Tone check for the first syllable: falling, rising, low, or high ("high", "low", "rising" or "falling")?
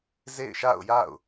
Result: falling